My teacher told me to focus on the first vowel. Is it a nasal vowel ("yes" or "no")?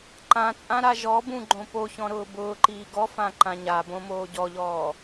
yes